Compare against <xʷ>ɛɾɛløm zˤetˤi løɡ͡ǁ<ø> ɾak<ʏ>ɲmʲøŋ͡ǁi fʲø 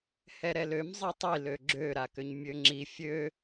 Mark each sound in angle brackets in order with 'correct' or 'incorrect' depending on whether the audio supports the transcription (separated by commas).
incorrect, correct, correct